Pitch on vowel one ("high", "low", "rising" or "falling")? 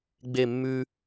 falling